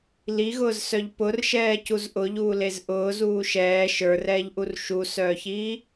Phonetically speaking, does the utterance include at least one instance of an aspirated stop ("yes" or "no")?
no